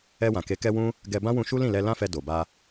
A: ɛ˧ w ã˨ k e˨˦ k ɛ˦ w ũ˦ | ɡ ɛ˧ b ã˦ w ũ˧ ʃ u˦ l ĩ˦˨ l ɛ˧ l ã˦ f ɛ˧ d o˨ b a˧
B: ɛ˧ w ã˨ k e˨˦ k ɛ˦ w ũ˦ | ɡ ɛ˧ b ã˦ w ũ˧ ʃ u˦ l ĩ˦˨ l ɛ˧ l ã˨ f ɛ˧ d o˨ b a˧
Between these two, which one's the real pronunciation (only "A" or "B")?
A